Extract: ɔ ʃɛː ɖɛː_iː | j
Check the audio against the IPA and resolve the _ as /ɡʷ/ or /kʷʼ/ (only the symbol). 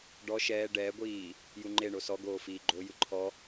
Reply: ɡʷ